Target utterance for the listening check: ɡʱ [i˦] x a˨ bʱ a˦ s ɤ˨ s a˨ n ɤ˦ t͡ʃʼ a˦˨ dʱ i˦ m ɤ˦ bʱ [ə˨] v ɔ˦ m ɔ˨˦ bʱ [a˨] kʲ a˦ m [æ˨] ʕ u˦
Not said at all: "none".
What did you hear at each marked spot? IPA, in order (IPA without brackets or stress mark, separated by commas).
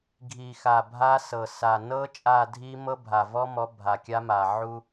i˨, a˨, a˨, a˨